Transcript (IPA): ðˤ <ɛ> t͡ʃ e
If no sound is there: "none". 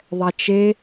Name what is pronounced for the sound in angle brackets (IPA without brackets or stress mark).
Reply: ɛ